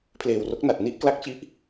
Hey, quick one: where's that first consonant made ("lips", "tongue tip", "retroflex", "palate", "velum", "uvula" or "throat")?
lips